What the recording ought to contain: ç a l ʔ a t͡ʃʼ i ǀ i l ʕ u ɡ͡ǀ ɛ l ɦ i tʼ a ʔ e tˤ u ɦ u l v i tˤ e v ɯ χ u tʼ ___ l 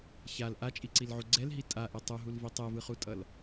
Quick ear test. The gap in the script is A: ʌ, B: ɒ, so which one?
A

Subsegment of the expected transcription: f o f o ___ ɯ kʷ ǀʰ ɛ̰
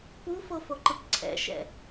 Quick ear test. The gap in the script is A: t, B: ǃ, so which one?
B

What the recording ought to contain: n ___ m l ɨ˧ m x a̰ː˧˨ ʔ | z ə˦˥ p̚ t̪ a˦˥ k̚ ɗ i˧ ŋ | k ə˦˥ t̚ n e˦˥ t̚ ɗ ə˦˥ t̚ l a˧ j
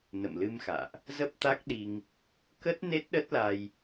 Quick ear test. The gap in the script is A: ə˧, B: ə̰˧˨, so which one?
B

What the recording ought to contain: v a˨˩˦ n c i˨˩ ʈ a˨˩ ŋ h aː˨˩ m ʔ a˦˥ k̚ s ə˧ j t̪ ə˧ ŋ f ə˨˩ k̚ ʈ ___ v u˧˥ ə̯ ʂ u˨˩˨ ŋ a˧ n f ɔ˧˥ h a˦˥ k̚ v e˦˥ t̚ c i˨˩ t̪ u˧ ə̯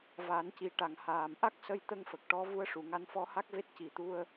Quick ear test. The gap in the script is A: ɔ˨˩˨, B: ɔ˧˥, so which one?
B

